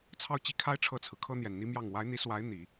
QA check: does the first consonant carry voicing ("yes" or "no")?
no